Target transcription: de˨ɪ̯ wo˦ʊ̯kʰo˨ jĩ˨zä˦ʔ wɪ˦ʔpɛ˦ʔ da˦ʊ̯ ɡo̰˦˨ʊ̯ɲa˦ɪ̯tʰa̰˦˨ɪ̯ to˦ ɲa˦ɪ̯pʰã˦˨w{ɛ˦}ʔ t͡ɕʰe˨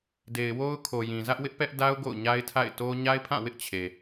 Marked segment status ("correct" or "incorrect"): incorrect